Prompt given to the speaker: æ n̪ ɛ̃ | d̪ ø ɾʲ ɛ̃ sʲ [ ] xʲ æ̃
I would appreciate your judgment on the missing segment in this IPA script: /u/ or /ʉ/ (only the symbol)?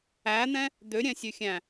ʉ